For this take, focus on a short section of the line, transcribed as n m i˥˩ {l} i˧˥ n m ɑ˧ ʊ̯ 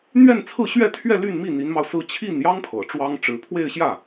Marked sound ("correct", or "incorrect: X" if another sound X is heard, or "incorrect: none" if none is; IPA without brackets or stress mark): incorrect: n̪